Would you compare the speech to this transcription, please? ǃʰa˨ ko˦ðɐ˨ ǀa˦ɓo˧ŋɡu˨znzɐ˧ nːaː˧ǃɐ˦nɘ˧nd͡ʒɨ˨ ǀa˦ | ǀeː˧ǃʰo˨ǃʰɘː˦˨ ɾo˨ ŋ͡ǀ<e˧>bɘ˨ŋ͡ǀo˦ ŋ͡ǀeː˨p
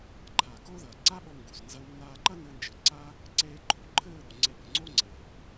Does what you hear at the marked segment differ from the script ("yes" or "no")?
no